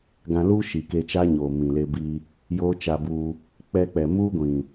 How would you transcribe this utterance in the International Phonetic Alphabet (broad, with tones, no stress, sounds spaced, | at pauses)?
ɡ ã˧ l u˦ ʃ i˨ k e˧ t͡ʃ aː˦ ɲ oː˨ m ĩ˨ l e˧ b i˧ | j oː˦ t͡ʃ a˧ b u˧ | k͡p ɛ˧ k͡p ɛ˨ m u˦ ɡʷ ĩ˨